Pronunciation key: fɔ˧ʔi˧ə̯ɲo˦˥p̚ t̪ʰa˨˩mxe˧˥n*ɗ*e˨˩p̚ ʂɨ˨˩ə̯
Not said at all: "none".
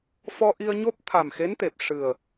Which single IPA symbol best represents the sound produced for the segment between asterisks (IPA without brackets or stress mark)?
t̪